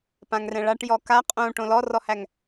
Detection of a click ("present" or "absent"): absent